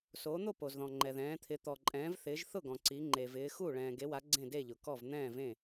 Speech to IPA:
s oː˨˦ n̪ o˥˨ p o˨ z ð ɔ̃˨ ŋ͡ǃ ɛ˨ ð ɛ̃ː˨˦ t̪ʰ ɪ˨˦ t̪ ɔ˨ ǃʼ ɛ̃ː˨˦ v θ ɪː˨˦ ʒ θ ʊ˥˨ ɡ ɔ̃˨ ǀ i˨˦ ŋ͡ǃ e˨ v ɪː˨˦ x u˥˨ ɭ ɛ̃ː˨ ɡ e˨˦ w a˨˦ ɡ͡ǀ ẽ˥˨ d e˥˨ ʎ ʊ˨ k ɔ˥˨ v n̪ ɛ̃ː˥˨ v ẽ˥˨

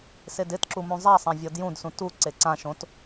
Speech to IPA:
s e d ɪ t ǁ u m ũ zˤ a sˤ ã vʲ ɔ d j ũ d s ũ t u ǀ e ǀ ã ʃ õ t

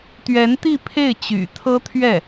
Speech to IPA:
t̪ ɥ ɛ˧˥ n t̪ i˥˧ pʰ e˥˩ ɪ̯ t͡ɕ y̰˨˩ t̪ʰ ɤ˥ t̪ʰ ɥ ɛ˥˩

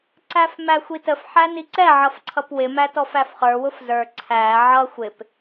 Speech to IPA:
ǀ æ f m æ xʷ i t ə f ħ æ n i ǀ ɛ ʕ ʌ f ǀʰ ʌ p w ɪ m æ t ɔ f æ f χ ə˞ w ʊ f z ə˞ ǀʰ æ ʕ ʌ xʷ ɪ p

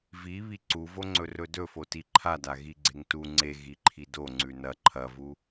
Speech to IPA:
v i β i ǀ u v o ŋ͡ǀ ɵ r ɵ d ɵ f o t i ǃʰ a d a ɣ i ɡ͡ǀ e ŋ t u ŋ͡ǀ e ɣ i ǃʰ i d o ŋ͡ǀ ʉ n ɐ ǃʰ ɐ v u

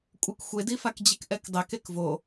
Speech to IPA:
kʷʼ ɪ k xʷ e d i f a k d͡ʑ i k ʔ ɛ k dˤ ɛ k e k v o

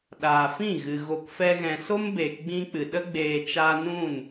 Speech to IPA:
ɗ aː˨ f ĩ˦˨ ɣ ɨ˨ ɣ o˧ k f ɛ˦ ɣ ɛ̃˧ s o˦ m b eː˨ k ɡ͡b ĩ˧ k͡p ɨ˨ ɗ ə˧ ɡ͡b eː˨ t͡ʃ aː˧ n ũ˦˨ n

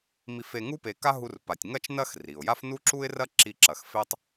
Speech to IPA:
m i˧ f e˧ ŋ u˥ p e˧ k a˥ ɦ u˥ r p a˧ tʲ ŋ ɐ˥ t͡ʃ n ɐ˥ x r i˩ ʊ̯ j a˥ f n u˥ ǁ u˥ ɪ̯ r ɐ˥ ǁ i˥ ǁ ɐ˧ x f e˥ tˤ

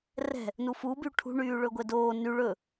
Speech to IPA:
r ɛ̤ | n u f u b y ʈʰ ṳ ɳ yː ɭ ɵ ɡʷ ɛ d oː n y ɭ ɵ

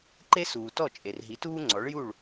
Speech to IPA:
ǃ e˥ s uː˩ t ɔ˥˩ t͡ʃʼ e˩ r ɦ i˩˥ t uː˥ ŋ͡ǀ ɔ˩˥ ɭ j u˥˩ ɭ

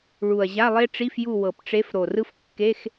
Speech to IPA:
ɭ u˨˩ ɐ̯ ʑ a˧˥˧ lˠ e˥ ʈ͡ʂ i˧˥˧ f j u˦˨ w ɤ˨˩ p ʈ͡ʂ e˧˥ f ɾ o˨˩ r ɯ˥ f kː e˧˥˧ x

